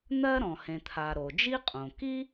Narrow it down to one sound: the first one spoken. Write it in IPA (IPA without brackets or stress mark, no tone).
n̪